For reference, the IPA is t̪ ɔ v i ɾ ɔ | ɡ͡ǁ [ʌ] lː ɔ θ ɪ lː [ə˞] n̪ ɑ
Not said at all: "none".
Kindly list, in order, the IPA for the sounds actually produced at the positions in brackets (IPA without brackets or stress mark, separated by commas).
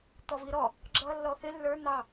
ʌ, ə˞